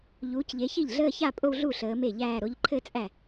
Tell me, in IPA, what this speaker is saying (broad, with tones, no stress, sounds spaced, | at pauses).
ʎ uː˨˦ c ʎ e˨˦ ç i˥˩ ʎ ɮ əː˥˧ ç a˥˧ pʼ o˥˧ w ɮ u˥˩ ɬ əː˨˦ m e˥˩ ʎ æː˥˧ ɾ o˨˦ ʎ ǃʰ ɘ˥˧ t͡sʼ æ˥˩